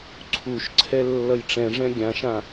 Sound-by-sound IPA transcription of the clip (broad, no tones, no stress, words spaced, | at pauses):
ǀʰuʃ ǀʰɛlːʌjʈ͡ʂɛ̃ʐɛ̃ ɡʲãʃã